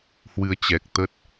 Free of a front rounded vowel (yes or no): yes